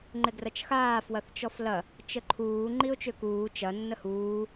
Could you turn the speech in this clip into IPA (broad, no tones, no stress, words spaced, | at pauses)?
ŋ͡ǃɪɡrɐt͡ʃxaː fwɐθt͡ʃɔflɐ | t͡ʃəǃʰuː ŋ͡ǃiʊ̯t͡ʃøkuː t͡ʃɐ nːəhuː